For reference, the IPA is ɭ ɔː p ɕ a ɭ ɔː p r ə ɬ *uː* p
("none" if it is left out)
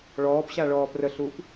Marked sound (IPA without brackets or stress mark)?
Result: uː